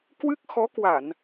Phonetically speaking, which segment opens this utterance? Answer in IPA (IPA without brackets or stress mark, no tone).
k